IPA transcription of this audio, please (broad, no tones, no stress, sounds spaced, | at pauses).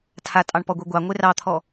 tʰ a tʼ ɑ ɳ p ɔ ɡʷ e ɡʷ ɑ ŋʷ e r ɑ t̪ʰ ɔ